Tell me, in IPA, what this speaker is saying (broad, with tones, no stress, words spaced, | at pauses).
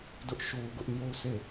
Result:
dʊ˦ʔʃo˦ʊ̯ ɡʊ˦ʔɲo˦ʊ̯sʰe˦˨